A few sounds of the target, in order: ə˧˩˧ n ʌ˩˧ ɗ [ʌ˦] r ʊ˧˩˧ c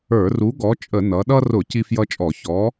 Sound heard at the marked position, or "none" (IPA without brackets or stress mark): ʌ˦